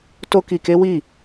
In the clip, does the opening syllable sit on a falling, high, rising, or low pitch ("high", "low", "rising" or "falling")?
high